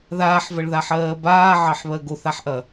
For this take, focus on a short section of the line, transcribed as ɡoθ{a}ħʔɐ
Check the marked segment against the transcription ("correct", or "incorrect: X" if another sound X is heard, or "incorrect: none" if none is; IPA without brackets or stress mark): correct